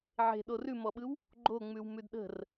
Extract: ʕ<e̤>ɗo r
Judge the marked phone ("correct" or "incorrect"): correct